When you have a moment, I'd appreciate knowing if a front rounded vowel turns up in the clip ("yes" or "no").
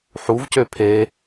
yes